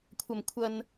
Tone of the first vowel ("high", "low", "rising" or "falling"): low